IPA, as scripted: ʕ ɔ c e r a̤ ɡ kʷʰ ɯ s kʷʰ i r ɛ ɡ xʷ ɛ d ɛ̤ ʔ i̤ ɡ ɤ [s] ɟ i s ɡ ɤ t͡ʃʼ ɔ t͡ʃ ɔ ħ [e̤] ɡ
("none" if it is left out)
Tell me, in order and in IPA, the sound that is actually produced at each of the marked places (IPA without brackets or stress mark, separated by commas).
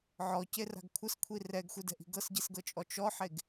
s, e